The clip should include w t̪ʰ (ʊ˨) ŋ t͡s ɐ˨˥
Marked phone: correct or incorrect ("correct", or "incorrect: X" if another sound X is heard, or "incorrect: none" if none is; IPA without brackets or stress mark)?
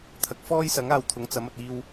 incorrect: ʊ˨˥